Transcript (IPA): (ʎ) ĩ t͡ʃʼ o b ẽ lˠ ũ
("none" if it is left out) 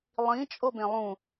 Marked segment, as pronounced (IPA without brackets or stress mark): lˠ